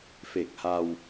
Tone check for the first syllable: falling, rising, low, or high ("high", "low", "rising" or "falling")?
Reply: low